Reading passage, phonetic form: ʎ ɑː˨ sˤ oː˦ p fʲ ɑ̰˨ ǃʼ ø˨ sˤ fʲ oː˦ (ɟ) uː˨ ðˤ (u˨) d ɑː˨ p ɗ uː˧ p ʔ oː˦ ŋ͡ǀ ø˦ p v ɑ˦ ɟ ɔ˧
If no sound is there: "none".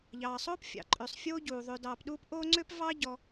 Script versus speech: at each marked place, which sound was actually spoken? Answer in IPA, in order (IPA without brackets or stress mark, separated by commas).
ɟ, ø˨